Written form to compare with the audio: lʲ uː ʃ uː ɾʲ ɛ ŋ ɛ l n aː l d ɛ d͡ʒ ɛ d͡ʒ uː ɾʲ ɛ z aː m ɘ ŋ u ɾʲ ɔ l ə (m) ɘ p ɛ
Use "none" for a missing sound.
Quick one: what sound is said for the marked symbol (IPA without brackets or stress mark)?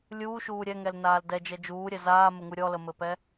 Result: m